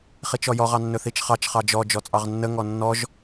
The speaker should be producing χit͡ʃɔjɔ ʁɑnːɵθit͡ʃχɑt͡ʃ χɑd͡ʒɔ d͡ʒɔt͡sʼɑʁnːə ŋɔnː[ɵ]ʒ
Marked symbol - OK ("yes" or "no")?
no